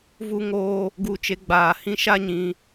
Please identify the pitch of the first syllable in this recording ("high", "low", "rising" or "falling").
high